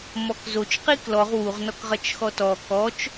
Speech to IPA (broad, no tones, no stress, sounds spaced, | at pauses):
m ɔ k z o t͡ʃ q i k l ɔ ʁ w u ʁ n ɔ k ʁ ɐ t͡ʃ x ɔ t ɔ k ɔ t͡ʃ